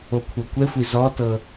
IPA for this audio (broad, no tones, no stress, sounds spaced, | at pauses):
o kʷʰ ɤ kʷ ɛ xʷ i z ɔ t ɤ